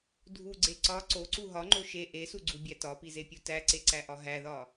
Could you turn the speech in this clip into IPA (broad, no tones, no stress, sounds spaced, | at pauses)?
dʱ u ɡ͡ǀ e ǀ ɒ ǀ o ǀ u ɦ ɒ ŋ͡ǃ o ʃ e ʔ e s u ɡ͡ǀ u bʲ æ t ɒ p i z e pʲ u t æ ǀ e ǀ æ ʔ ɒ ɦ æ ð ɒ